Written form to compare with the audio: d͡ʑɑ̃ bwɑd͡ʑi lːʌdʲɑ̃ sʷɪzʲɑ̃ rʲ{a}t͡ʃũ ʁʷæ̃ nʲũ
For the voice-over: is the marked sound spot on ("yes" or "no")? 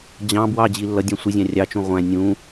no